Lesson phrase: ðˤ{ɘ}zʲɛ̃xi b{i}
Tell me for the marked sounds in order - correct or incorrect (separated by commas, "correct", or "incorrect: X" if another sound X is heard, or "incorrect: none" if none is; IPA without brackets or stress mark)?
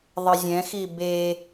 correct, incorrect: e